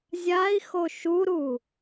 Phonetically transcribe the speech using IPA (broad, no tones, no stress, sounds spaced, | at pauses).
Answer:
zʲ a i̯ x o ʃ u ɾ u